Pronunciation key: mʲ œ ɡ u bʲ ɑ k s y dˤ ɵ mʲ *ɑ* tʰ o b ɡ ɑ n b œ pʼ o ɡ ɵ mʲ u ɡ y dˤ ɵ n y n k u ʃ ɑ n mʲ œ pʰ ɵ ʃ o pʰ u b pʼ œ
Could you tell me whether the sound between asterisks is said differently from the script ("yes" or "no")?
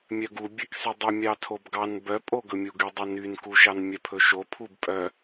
no